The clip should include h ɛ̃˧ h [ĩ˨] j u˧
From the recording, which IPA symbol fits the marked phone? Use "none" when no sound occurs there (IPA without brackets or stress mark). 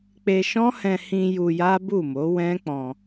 ĩ˧